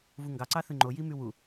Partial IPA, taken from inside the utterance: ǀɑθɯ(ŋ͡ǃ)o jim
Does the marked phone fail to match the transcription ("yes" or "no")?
no